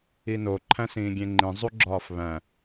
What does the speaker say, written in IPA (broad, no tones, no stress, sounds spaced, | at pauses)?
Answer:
i n o ǃʰ æ̃ s ĩː ɡʲ ẽ ŋ͡ǃ ĩ zˤ u ɡ͡ǁ ɒː f β æ̃